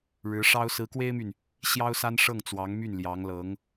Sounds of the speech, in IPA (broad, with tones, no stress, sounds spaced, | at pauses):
ɻ ɻ̩˧˥ ʂ ɑ˥ ʊ̯ s ɹ̩˧˥ k w e˥ ɪ̯ m y˨ n | ɕ j ɑ˥ ʊ̯ s a˥ n ʂ ɤ˥˩ ŋ t͡s w ɑ˧˥ ŋ m y˥˩ n l j ɑ˧˥ ŋ l ɤ˧˥ ŋ